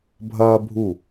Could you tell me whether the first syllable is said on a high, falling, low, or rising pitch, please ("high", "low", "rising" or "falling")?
high